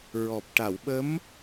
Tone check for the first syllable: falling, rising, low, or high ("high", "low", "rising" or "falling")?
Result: low